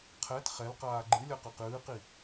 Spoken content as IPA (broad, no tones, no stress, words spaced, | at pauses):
qʰɛt χɛlqaː ɡ͡ǃɨ lʲʌqaqɨːqi